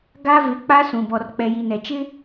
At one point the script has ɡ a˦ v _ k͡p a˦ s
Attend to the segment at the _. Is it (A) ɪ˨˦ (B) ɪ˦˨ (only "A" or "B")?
A